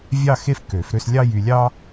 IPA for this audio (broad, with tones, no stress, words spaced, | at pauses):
vʲɑ˥˧ xe˥˧fkø˨˩˦fɾø˥˧slʲɑ˥ jy˧lʲɑ˥